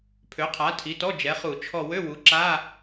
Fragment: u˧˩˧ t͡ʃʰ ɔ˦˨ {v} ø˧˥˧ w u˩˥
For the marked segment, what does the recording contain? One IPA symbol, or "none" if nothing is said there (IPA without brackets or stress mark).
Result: w